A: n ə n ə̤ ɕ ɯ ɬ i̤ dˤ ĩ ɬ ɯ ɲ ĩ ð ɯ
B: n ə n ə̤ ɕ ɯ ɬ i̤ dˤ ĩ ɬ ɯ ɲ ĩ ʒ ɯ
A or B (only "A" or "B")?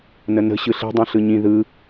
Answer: A